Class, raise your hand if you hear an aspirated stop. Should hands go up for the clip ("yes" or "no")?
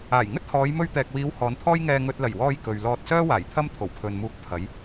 yes